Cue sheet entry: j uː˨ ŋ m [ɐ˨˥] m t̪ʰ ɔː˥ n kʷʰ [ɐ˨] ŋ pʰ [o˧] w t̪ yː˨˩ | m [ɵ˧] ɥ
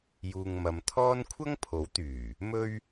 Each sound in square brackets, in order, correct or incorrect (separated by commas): incorrect, incorrect, incorrect, correct